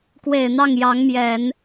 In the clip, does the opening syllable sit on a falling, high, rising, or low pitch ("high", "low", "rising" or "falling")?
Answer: low